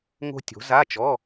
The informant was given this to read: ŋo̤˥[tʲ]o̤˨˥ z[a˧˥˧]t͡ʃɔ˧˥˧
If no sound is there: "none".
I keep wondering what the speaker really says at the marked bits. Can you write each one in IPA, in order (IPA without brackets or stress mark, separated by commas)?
tʲ, a˧˥˧